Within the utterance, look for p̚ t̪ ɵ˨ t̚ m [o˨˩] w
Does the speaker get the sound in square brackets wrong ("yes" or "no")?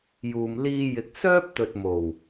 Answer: no